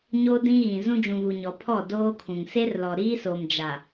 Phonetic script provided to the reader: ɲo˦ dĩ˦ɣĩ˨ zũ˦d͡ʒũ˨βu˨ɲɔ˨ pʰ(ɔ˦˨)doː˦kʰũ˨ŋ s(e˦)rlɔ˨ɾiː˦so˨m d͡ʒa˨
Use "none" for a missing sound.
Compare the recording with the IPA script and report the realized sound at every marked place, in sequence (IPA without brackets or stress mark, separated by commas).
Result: ɔ˦˨, e˦